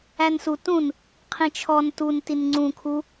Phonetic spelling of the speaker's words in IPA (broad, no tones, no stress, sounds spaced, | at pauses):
æ n s u t ũ n | qʰ ĩ t͡ʃʰ ɔ n t u n t i n ŋ͡ǀ ũ kʰ u